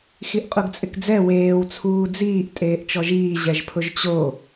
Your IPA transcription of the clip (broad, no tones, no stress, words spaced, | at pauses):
xiʔqʼuɡt͡sʼɪkd͡zɛ weːw t͡sʰuːd͡ziːʔ tʼeːʔt͡ʃɔʒiː ʑɛʒpʰʊʒt͡ɕo